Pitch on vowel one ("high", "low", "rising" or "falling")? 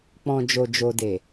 low